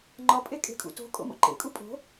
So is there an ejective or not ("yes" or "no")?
yes